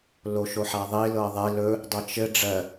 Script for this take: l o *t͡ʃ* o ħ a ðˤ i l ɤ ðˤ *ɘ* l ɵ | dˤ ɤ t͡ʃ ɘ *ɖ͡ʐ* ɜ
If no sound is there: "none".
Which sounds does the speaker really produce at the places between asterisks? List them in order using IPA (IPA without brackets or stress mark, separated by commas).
ʃ, e, ɖ͡ʐ